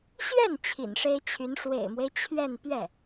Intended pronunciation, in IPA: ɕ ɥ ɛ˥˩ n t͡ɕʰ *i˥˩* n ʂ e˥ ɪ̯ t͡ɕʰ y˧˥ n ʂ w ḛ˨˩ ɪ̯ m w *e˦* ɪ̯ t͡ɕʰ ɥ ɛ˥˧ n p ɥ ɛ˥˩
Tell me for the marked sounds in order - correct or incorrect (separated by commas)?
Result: incorrect, correct